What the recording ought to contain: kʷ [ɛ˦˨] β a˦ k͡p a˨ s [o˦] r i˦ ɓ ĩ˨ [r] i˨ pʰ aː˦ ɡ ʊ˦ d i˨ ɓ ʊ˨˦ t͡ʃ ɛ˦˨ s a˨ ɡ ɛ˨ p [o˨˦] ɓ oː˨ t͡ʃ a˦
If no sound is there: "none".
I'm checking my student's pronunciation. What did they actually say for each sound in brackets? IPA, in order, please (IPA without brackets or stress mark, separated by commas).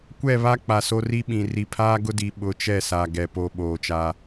ɛ˦˨, o˦, r, o˦˨